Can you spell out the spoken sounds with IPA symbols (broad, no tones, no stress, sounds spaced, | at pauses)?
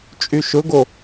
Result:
t͡ʃʼ y ʃ ʊ ɡ o